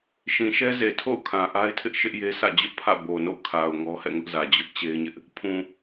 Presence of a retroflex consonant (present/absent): absent